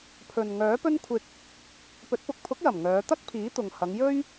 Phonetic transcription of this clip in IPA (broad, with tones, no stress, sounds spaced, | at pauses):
pʰ ɵ˨ n ŋ œː˨˥ p ɵ˥ n kʷʰ ɪ˧ k̚ | p ɵ˨˥ t̚ p ʊ˨ k̚ pʰ ʊ˨˥ k̚ j ɐ˨˩ m ŋ œː˨˧ t̪ ɐ˥ k̚ pʰ iː˨˥ t̪ ʊ˨ ŋ h ɐ˨˧ ŋ j ɵ˥ ɥ